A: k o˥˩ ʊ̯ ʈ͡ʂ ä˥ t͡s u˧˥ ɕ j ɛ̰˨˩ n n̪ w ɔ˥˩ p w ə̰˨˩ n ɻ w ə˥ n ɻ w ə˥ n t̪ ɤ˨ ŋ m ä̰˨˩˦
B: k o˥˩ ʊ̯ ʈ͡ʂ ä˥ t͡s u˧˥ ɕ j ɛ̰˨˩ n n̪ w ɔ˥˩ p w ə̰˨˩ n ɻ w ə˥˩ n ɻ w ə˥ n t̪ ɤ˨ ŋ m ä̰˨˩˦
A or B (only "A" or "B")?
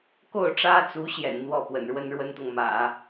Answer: A